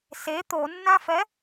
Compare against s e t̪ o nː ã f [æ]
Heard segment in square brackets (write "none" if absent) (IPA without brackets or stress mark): ɛ